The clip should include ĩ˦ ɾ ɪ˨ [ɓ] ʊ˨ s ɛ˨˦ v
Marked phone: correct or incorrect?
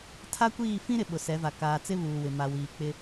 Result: correct